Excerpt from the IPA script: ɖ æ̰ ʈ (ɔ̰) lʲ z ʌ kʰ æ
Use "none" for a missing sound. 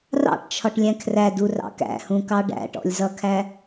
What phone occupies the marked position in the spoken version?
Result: ɔ̰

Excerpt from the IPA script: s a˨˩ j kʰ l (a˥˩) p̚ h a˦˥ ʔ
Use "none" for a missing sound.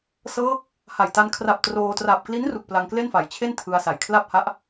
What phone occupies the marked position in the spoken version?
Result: a˥˩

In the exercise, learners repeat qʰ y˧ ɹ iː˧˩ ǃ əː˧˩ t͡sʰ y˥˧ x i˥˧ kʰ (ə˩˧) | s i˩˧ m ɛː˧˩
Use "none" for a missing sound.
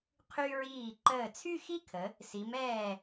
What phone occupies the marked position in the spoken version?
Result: ə˩˧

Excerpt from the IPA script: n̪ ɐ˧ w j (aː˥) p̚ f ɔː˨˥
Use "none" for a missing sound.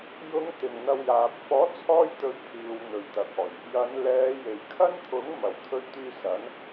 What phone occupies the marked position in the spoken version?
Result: aː˨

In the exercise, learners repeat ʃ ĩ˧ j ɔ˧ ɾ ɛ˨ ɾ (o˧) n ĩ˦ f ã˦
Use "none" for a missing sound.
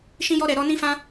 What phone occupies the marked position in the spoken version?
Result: ɔ˧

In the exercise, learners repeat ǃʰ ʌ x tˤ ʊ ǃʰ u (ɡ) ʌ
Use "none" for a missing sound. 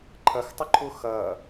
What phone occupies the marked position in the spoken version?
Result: x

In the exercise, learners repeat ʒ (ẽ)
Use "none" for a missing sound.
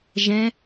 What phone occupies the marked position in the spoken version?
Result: ɛ̃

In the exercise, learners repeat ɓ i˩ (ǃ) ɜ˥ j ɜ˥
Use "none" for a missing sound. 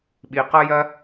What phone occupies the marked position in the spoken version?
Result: q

